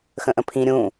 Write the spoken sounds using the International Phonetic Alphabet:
xə̃ʔə̃pʰĩ ɾʲũ

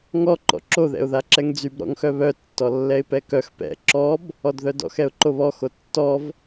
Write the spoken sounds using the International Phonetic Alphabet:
ŋɔ ǃɔ̰ǁo ðɛ̰ʊ̯ðaǁɛŋd͡zyb ɾɔ̰ŋxœβœ tːɔlːɛɪ̯pɛkœx pɛ̰ ǁɔb | ɔdðœdɔ̰x ɛʊ̯ǃoβɔ xotːɔv

